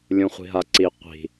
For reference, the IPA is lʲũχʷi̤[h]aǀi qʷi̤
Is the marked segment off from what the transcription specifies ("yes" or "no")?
yes